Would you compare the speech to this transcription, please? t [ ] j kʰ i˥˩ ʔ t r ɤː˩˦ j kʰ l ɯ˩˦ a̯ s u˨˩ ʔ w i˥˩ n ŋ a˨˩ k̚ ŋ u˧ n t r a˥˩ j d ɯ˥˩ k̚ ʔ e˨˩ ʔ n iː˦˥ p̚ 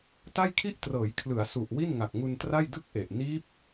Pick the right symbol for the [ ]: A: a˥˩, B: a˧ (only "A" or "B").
A